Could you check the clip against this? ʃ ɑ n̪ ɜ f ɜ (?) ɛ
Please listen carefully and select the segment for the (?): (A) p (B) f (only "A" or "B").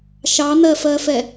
B